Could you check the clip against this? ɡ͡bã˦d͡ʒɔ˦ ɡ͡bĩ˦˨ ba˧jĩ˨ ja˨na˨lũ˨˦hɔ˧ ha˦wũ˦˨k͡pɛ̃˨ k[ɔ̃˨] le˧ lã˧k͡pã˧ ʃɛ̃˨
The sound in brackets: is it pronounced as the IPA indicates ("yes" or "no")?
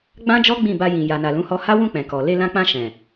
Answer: no